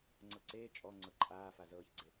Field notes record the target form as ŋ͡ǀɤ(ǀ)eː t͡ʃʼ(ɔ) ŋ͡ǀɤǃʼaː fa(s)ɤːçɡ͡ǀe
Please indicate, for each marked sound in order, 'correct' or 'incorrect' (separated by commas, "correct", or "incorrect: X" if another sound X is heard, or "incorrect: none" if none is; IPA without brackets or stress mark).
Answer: correct, correct, incorrect: z